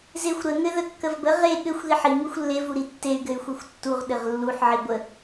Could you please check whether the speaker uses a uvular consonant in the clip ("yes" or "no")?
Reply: yes